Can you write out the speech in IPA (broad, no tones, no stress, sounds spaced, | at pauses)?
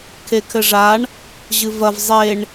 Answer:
kʰ e kʰ ɘ ʐ a ɳ | ʑ ɨ v ɐ v zˤ e ɳ